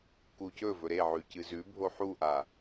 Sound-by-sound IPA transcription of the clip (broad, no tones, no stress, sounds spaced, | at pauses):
k u c ɵ v ɵ ɾ e ʕ ʉ c ɨ z ʉ bʱ o ħ u ʔ a